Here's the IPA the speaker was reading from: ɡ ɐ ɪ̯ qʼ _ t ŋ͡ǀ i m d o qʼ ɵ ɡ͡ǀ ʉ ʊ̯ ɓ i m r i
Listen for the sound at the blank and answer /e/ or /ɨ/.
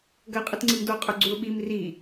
ɨ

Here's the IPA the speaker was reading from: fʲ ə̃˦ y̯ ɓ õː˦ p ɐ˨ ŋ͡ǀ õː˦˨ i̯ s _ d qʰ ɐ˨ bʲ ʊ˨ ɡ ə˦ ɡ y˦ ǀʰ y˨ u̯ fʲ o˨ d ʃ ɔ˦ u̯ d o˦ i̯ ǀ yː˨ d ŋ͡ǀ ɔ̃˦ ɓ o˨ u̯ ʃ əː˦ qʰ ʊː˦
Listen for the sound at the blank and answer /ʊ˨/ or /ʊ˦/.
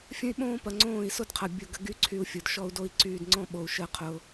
ʊ˦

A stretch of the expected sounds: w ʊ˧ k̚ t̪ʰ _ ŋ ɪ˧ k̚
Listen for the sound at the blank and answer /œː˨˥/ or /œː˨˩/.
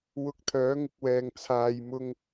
œː˨˥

